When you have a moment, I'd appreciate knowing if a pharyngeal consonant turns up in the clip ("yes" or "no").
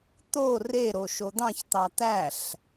no